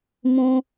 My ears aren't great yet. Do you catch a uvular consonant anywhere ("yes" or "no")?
no